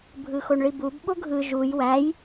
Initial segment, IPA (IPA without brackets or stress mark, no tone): bʱ